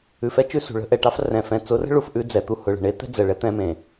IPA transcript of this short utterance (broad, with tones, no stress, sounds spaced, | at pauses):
ʉ˨ f ɛ˦ t͡ʃ ʉ˦ s ṳ˨ ɭ ə̤˦ ʔ ɛ˨ ʈ ɑ˦ f r ɛ̃˨ f ɛ̃˨ t͡s ʊ˨˦ r ə̤˦ ɭ u˨ f ʔ ʉ˦ d͡z ɛ˨ t̪ u˦ h ʊ˨ ɭ ə̤˨ ɳ e˦ t̪ ɛ̤˦ d͡z ɜ˨ ɭ ɛ˦ t̪ ɛ̃˦ m ẽ˨